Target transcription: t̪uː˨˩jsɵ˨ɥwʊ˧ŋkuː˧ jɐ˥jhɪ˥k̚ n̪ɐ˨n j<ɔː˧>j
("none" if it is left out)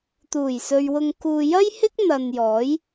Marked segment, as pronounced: ɔː˨˥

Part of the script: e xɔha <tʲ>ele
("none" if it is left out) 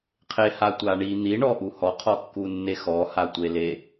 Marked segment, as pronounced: tʷ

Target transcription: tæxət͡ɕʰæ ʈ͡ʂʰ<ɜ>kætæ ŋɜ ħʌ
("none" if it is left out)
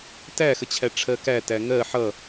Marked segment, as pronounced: ɜ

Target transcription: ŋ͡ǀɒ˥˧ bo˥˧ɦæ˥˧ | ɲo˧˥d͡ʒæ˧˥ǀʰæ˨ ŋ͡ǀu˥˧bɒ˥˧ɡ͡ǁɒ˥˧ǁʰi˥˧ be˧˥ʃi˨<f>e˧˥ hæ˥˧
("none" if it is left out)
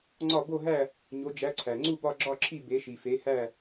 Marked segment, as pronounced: f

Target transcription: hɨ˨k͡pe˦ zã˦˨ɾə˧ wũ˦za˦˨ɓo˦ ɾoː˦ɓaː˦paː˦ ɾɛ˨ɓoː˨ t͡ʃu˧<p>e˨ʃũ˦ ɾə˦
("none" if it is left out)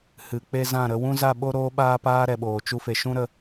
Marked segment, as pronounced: f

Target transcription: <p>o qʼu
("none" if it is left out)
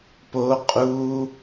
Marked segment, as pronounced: p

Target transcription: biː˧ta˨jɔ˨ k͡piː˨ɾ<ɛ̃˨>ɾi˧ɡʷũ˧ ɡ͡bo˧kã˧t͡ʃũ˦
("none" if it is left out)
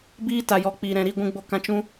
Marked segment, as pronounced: ɛ̃˨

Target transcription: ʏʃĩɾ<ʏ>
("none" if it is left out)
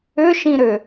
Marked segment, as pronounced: ʏ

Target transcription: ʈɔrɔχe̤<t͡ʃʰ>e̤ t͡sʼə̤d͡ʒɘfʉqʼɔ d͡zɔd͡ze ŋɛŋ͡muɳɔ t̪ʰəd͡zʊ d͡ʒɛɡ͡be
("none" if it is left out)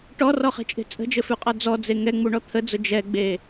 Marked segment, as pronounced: t͡ʃʼ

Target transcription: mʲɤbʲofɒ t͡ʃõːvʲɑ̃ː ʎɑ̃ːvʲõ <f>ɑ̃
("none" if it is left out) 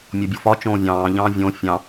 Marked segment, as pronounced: fʲ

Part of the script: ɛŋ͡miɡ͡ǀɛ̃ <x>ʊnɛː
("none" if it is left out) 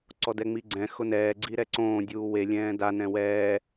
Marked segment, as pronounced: x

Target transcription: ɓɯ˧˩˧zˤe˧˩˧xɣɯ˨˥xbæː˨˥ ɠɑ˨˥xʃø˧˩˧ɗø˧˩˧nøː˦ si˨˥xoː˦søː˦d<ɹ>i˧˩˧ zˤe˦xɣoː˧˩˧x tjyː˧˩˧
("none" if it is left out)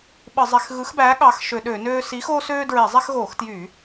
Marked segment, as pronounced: ɹ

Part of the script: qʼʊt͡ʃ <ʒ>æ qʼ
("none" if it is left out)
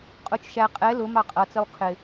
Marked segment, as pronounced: ʃ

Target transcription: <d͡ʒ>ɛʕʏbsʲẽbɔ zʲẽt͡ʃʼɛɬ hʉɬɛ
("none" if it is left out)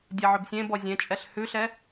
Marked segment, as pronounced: dʲ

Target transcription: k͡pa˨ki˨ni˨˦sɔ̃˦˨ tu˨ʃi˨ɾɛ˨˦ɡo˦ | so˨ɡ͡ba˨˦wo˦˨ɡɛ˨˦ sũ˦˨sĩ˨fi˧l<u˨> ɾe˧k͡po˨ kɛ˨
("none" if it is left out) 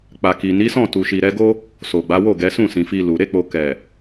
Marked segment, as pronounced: u˨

